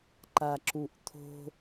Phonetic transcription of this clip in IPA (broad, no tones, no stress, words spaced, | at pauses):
ǃaǁuʔt̪ʰo̤